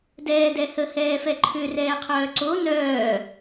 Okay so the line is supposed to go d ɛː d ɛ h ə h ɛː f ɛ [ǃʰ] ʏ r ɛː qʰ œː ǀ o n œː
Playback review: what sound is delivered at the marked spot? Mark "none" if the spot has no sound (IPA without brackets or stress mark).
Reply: ǃʰ